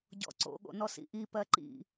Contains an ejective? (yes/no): no